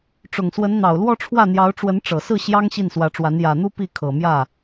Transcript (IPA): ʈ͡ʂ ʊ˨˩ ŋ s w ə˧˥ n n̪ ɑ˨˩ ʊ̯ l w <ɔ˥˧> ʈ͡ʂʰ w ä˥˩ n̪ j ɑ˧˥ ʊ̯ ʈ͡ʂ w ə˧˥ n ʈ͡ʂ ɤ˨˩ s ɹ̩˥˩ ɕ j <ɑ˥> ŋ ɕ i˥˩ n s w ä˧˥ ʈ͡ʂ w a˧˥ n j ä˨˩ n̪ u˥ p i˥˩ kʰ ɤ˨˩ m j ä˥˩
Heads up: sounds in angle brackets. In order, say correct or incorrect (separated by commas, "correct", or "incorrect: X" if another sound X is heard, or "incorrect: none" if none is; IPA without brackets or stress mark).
correct, correct